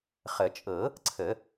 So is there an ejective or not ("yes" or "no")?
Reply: yes